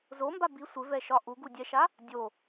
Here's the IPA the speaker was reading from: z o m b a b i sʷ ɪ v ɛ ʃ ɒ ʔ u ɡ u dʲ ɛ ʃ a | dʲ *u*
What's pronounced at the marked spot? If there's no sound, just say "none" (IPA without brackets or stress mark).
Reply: o